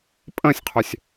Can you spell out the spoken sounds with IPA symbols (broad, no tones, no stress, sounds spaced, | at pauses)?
pʼ ə̃ sʲ qʰ ø sʲ